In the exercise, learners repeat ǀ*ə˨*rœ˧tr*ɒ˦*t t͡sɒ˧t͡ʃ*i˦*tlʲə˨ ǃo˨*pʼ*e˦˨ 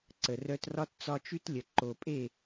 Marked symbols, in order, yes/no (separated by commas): yes, yes, no, yes